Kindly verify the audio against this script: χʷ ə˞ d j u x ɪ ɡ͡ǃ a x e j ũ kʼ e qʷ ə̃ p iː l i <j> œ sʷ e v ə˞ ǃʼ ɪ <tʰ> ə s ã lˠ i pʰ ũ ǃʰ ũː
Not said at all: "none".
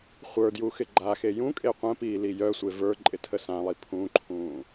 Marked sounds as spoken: j, tʰ

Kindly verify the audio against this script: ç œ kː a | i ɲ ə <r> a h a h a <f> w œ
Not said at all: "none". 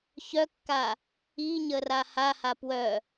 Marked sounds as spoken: r, p

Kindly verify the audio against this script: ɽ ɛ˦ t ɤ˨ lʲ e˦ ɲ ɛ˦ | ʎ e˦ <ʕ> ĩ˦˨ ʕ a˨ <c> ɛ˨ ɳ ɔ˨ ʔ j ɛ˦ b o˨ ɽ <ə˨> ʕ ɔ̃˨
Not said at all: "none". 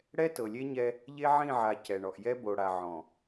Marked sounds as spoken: ʕ, c, a˨

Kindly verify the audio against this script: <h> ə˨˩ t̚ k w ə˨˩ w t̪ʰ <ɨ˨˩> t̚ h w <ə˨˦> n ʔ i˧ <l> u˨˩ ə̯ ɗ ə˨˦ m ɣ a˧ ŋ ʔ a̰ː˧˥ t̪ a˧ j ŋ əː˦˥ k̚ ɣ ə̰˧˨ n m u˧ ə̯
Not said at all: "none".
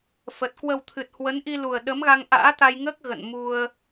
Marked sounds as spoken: f, ɨ˨˩, ə˨˦, l

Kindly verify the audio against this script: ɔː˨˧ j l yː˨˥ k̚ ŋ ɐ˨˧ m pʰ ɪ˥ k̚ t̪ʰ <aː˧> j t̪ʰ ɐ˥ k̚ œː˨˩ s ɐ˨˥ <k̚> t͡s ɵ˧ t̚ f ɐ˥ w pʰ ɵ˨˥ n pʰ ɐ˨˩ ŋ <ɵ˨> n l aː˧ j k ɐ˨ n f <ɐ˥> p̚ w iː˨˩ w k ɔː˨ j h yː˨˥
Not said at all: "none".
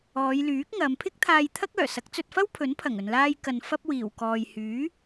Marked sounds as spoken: aː˧, k̚, ɵ˨, ɐ˥

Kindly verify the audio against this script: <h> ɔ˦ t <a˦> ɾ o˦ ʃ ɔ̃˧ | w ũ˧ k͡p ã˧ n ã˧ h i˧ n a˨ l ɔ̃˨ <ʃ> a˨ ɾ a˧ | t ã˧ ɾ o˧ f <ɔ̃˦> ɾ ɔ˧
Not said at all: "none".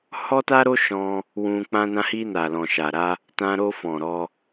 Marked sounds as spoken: h, a˦, ʃ, ɔ̃˨

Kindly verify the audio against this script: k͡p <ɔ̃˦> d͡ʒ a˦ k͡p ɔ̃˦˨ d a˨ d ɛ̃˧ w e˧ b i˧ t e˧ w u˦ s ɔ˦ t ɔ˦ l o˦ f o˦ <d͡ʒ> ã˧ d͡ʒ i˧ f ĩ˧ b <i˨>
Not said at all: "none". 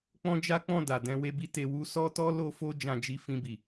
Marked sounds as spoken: ɔ̃˦, d͡ʒ, i˨

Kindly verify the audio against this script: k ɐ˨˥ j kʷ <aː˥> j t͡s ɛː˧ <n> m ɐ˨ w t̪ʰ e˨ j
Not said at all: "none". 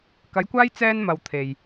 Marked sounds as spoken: aː˥, n

